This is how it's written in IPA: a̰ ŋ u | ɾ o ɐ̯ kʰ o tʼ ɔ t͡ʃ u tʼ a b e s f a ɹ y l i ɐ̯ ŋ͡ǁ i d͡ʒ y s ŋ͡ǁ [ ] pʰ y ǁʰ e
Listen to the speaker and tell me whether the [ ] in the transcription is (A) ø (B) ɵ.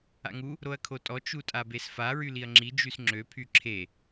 A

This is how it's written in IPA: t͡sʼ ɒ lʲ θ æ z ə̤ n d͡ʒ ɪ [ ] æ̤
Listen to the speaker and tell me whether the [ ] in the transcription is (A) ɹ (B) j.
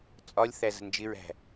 A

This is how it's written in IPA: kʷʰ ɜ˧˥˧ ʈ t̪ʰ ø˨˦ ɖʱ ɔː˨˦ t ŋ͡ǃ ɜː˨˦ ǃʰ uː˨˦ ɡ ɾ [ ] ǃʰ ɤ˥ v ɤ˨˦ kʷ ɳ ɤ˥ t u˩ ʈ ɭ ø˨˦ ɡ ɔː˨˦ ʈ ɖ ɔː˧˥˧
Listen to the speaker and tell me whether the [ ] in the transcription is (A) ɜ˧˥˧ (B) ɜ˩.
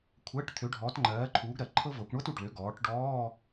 B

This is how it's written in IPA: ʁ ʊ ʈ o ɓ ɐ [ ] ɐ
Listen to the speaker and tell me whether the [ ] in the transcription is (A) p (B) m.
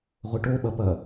A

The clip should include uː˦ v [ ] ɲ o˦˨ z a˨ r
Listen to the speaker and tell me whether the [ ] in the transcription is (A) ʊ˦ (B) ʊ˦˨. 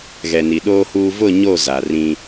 B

